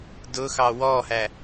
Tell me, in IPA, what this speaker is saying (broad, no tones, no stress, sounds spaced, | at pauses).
d ʊ x ɑ w ɔ h æ